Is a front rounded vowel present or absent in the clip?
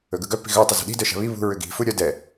present